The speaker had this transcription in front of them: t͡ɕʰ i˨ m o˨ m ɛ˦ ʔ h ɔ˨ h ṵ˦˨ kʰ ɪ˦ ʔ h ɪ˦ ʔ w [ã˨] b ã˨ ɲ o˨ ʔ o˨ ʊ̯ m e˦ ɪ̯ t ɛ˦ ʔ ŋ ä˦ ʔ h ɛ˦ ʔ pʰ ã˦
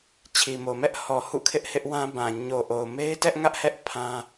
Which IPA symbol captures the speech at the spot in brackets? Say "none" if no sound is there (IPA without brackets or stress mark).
ã˦